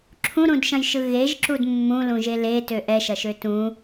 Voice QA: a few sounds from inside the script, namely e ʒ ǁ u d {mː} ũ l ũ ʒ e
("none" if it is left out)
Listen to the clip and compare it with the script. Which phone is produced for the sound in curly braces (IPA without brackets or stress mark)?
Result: mː